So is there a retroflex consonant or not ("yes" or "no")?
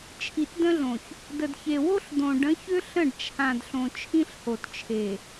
yes